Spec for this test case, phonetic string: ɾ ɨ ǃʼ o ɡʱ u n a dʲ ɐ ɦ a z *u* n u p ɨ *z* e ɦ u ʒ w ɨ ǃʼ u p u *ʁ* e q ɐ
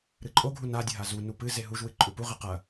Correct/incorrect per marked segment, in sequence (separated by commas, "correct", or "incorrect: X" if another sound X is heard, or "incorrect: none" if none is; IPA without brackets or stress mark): correct, correct, correct